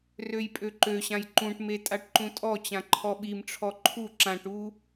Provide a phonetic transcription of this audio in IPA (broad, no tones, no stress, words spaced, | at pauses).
røjpʼøǃøɕãj ǃũʈme tʼaʈǃũtʼɔt͡ɕã ǃʰɔɓimʈ͡ʂʰɔ ǃʰu ǁãʈu